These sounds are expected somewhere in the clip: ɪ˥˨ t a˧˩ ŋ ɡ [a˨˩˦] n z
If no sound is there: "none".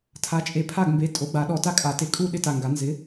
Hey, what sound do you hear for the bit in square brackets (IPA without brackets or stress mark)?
a˨˩˦